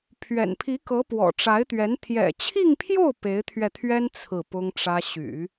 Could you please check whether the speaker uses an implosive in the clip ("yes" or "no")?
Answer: no